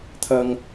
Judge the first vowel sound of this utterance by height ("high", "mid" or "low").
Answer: low